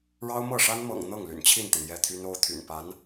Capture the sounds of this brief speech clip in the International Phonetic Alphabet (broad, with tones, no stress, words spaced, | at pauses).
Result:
ɻɑ˥ʊ̯ mɤ˥˩ʂa˥n mɤ̰˨˩ŋ n̪ɤ˥˩ŋly̰˨˩nt͡ɕʰi˥˩nt̪i˩ŋ jɛ˥˩t̪ʰy˥no˥ʊ̯ t̪ʰy̰˨˩npa˧˥n